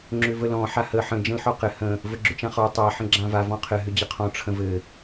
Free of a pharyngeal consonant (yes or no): no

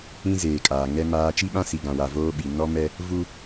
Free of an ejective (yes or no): no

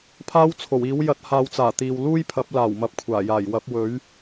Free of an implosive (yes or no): yes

